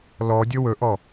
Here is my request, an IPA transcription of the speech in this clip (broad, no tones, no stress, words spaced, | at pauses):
lɔdʲɵ wɵʔɔ